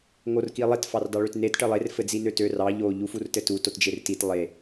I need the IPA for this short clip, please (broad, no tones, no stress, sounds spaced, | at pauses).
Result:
ŋ o r k i lˠ e t f ɑ r d ɑ ɭ ø t n e t ʈ ɘ lˠ e r f ɘ d͡z i n ø t ø r ɑ ʎ o ʎ u f u r t ɘ t u t o t d͡ʒ e r t i t lˠ e